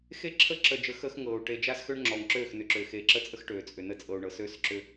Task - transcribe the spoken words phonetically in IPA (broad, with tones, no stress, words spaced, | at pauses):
xe˦ ǁʰə˦ǁə˨d͡ʒə˨ xəː˦xŋɤː˨u̯ ʈe˨d͡ʒa˦sxø˦ɳ ŋ͡ǁɔ˨ŋ ǁøː˦˨xnʏ˨ǁʏː˨ xeː˨ǁə˦t͡sʼə˦x ʈøː˨t͡sʼʏ˨nə˦ t͡sʼɤ˨u̯ɳɤ˨søː˦sǁʏː˦